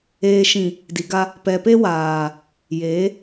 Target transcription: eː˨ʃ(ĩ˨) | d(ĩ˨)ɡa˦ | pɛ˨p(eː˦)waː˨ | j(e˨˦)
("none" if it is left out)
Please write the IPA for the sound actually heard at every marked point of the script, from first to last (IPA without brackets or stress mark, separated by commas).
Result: ĩ˨, i˨, e˦, e˨˦